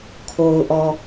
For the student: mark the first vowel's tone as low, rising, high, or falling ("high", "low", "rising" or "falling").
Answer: low